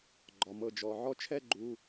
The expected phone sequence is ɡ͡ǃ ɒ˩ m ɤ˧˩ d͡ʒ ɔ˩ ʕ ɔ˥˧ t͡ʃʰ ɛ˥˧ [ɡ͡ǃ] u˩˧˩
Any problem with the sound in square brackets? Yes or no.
no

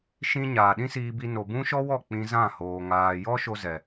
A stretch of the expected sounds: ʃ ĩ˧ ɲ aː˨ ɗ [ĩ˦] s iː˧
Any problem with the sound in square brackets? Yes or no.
no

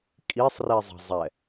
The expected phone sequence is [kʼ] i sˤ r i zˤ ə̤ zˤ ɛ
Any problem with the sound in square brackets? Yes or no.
no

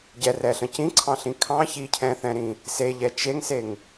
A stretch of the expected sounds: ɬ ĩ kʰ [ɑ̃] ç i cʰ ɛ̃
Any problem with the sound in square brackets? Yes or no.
no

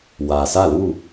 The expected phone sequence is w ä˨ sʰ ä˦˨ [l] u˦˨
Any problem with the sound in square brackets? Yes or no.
no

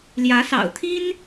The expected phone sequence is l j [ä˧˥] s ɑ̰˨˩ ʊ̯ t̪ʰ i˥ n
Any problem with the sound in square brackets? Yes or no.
no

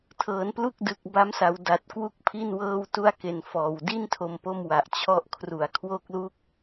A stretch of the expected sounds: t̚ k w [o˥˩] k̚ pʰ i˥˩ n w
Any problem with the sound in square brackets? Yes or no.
yes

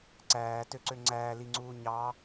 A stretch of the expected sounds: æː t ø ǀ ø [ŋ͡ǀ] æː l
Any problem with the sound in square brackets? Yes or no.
no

